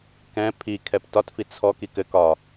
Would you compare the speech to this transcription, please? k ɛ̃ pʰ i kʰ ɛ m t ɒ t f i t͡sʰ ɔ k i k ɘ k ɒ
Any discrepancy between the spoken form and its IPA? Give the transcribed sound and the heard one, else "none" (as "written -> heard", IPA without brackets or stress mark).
m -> p